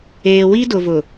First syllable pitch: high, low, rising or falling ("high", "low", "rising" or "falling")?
low